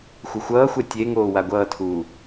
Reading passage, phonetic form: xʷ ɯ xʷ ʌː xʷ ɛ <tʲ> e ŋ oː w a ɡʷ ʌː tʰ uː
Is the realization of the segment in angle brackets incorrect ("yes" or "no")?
no